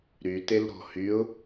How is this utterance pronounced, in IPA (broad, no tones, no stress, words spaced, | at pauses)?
ɾytelɾɔ̤ hyʊ̯